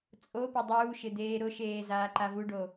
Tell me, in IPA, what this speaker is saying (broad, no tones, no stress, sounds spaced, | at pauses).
t͡sʼ o p ɪ dˤ uː ʃ ɪ d̪ eː ɾ ʊ ʃ eː z aː ǃ a v u ɖ o